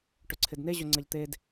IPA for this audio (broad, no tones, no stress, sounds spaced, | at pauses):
ʈ ɵ ǀʰ ɪ d n e ʑ ɵ ŋ͡ǀ ɐ ʎ t̪ e d